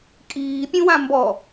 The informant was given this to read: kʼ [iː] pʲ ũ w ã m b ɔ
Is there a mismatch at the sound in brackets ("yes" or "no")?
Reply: no